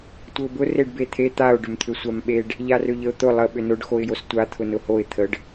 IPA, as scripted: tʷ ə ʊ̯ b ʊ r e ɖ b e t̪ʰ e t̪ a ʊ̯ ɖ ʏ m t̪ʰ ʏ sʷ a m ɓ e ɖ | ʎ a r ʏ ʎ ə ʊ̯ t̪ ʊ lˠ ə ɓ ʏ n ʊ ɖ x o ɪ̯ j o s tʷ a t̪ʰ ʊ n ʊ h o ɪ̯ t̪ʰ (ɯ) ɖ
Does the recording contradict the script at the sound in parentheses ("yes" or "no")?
yes